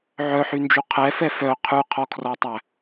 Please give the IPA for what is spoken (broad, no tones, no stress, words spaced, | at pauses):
ʕœħynd͡ʒu qʰɛfɛ fœ qʰʉqʰɔkʰrɔtˤæ